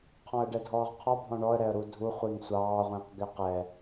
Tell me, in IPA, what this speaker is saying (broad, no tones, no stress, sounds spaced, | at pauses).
qʰ ɔ̃ ə̯ ɖ ɛ dʱ ɔː ʁ qʰ ɔ bʱ ɔ̃ ɳ ɔ ə̯ ɾ ɛ ə̯ ɾ u dʱ u χʷ i ŋ sʷ ɑː ʁʷ ĩː q d̪ i q ɛ